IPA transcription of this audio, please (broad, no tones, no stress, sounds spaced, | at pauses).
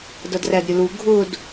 d ʌ d r æ d ɾʲ ʊ l u ɡʱ ʊ d